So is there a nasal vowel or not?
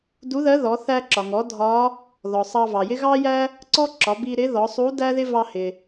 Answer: no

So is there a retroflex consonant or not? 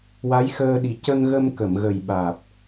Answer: no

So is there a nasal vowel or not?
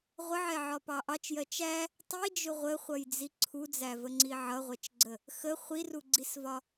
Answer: no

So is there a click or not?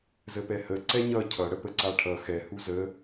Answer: yes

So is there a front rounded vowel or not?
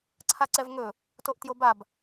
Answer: no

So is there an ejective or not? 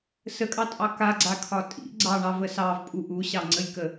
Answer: yes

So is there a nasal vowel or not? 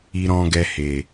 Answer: yes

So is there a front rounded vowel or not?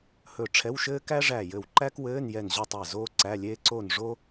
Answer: no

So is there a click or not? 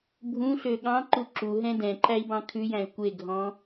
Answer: yes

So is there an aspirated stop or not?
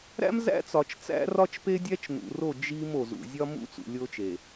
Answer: no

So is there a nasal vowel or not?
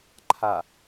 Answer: no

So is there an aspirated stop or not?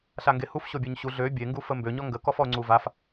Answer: no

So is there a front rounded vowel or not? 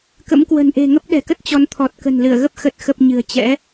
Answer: no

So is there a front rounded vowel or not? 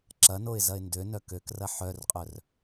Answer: yes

